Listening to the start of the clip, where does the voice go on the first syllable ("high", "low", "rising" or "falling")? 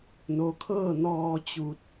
low